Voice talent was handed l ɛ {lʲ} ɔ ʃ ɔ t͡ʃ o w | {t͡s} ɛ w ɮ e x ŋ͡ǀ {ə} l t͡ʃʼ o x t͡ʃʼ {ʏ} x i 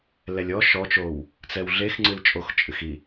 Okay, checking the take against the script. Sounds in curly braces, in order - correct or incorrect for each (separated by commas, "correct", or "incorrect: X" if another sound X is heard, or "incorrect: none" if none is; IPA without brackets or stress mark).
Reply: correct, correct, incorrect: ɨ, incorrect: ɨ